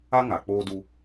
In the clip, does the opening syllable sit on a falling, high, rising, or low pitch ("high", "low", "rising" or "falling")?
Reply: high